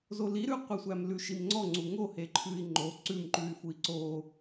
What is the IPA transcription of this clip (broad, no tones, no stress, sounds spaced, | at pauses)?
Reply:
z o l i ɾ ʉ qʷ i sʷ æ m l ʉ ʃ i m ŋ͡ǀ ɔ ŋ͡ǀ u ŋ o h e ǃʰ ʉ i̯ ŋ͡ǃ o ǀ ʉ m ǃ ʉ y̯ f u i̯ ǀ o